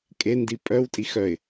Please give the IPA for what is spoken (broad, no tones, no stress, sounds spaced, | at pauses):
kʼ e n d i pʼ œ w tʼ i x œ ɪ̯